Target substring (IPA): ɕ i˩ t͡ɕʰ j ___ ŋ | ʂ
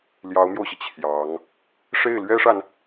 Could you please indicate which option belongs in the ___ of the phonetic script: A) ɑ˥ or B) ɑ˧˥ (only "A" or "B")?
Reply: B